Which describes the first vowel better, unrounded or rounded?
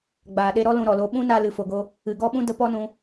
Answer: unrounded